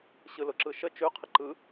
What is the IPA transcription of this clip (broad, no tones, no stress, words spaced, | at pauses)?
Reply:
ɕɯlʊǁɯʃə t͡ʃʉ qʰəǃɯ